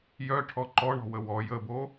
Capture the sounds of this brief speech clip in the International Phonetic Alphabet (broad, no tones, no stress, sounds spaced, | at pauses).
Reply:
j œ ʈʰ ɔ ǃ ɔ ɳ ɔ̤ w ə w ɔ j ə b o